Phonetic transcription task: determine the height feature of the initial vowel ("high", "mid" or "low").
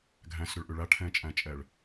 low